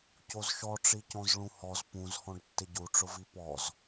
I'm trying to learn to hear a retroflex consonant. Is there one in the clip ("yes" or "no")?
yes